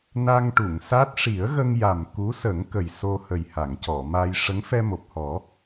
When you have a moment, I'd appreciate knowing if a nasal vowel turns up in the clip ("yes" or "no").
no